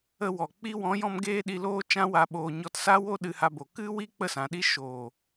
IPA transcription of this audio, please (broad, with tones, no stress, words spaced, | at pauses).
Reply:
ə˧wɔ˨ k͡pi˧wɔ̃˨˦jɔ̃˧m ɡeː˦ɗi˧loː˦ t͡ʃã˦wa˧ɓoː˧ ɲɔ˧tsa˦wo˦ ɗɨ˧ha˧bo˨ kɨ˦wi˦ k͡pə˦sã˨ɗi˦ ʃoː˨